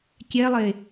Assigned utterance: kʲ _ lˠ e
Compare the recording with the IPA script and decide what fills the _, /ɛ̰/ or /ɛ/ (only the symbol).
ɛ